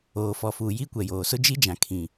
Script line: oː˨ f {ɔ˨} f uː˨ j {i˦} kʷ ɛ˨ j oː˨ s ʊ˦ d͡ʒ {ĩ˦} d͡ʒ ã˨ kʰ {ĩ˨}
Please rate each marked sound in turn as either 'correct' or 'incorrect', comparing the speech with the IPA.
correct, correct, incorrect: i˦, correct

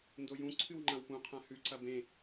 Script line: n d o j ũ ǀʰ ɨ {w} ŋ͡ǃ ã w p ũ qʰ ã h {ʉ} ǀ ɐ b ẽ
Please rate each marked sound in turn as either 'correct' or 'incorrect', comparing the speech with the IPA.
correct, correct

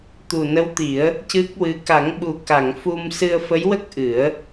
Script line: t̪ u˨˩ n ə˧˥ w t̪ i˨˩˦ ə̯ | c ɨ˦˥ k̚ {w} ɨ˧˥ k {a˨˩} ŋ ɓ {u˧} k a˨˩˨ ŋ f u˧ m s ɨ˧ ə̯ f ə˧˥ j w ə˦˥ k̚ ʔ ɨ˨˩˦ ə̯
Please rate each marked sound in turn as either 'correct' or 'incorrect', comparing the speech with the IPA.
correct, incorrect: a˨˩˦, incorrect: u˨˩

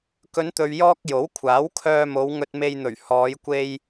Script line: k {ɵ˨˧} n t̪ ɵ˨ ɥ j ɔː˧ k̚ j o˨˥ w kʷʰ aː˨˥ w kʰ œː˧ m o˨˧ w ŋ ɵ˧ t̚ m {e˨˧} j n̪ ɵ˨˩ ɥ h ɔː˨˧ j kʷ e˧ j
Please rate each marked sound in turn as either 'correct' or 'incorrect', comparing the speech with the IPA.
correct, incorrect: e˧

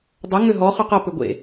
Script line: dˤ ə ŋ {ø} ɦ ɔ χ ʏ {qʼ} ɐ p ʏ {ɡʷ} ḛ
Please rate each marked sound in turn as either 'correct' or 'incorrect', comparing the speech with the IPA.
correct, incorrect: q, correct

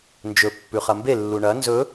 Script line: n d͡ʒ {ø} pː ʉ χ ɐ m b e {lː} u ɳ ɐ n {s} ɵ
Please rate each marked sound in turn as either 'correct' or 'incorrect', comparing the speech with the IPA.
incorrect: ɵ, correct, incorrect: z

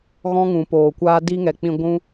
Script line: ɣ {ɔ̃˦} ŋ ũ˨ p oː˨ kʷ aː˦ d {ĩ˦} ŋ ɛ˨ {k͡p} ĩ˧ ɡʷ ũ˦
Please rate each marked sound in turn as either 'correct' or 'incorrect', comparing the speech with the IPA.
correct, incorrect: i˦, correct

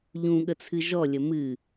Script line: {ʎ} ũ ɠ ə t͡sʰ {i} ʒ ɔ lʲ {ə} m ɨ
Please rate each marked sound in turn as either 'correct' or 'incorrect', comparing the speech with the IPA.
correct, incorrect: ɨ, correct

